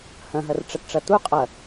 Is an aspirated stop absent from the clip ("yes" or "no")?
yes